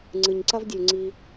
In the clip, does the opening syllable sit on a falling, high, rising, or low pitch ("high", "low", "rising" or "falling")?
low